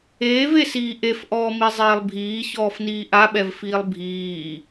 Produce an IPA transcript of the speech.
eː v e s iː ʔ e f ʔ ɔː m i zˤ eː lˠ bʱ iː ç ɔː f n iː ʔ a ɓ ɛ v f iː lˠ bʱ iː

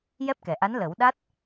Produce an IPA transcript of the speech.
j ɛ˦˥ p̚ k ɛ˨˩ ʔ a˧˥ n l əː˨˩˦ w ɗ a˦˥ t̚

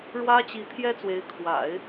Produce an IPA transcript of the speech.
ɻ w ä˥ t͡ɕ i˧˥ t̪ʰ j ɛ˥ t͡s w e˧˥ ɪ̯ kʰ w a̰˨˩˦ ɪ̯

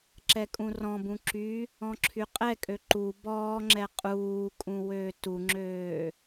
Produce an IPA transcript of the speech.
ǁ ɛ kʼ ũ r ɔ̃ b ũ ǁ y | ɔ̃ ǁʰ y qʼ ɛ kʼ ø ǃ u b ɔː ŋ͡ǁ ɛ qʼ uː kʼ ũ w øː t u ŋ͡ǁ øː

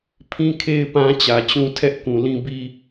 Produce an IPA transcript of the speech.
pʰ ĩ˦ kʰ e˦ ɪ̯ p ã˦ t͡ɕ ä˨ t͡ɕ ũ˦ tʰ ɛ˦ ʔ k ũ˨ l ĩ˦ b i˦

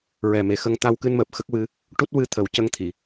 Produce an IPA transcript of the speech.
ɹ ɛ˨˩ m e˨˩ x ə˧ ŋ t̪ a˧ w k ɨ˧ n m əː˨˩ p̚ x ə˦˥ k̚ w ɨ˧˥ | ʈ u˦˥ t̚ w ɨ˧ t̪ʰ ə˨˩˦ w c ə˧ ŋ t̪ʰ i˨˩˨

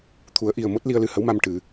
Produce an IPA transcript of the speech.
t̪ʰ u˨˩˦ ə̯ ʔ i˨˩ ə̯ m o˦˥ t̚ l i˧ ə̯ l ɨ˧ h ə˧˥ w m a˧ m ʈ ɨ˨˩˦

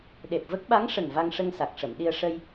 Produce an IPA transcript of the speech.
ɗ e˨˩ p̚ v ə˦˥ k̚ ɓ a˧˥ ŋ ʂ ə˨˩ ŋ v a˧ ŋ ʂ ə˧ ŋ s a˨˩ k̚ ʂ ə˨˩˨ m ɗ i˧ ə̯ ʂ ə˧ j

